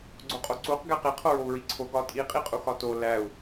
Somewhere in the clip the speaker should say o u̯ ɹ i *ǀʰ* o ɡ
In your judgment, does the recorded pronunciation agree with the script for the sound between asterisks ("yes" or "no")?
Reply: yes